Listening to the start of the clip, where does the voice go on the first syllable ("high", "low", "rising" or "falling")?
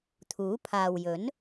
rising